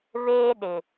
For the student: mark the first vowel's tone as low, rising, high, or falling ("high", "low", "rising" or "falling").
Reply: high